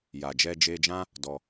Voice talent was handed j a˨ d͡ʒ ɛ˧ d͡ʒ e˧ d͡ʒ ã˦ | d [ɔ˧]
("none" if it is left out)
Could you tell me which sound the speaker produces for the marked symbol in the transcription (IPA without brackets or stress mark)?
ɔ˧